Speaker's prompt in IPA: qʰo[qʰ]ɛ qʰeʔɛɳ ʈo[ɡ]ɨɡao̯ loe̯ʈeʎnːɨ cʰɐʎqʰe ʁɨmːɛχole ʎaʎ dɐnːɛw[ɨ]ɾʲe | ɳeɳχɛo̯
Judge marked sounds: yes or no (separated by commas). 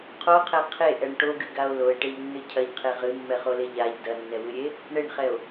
yes, yes, yes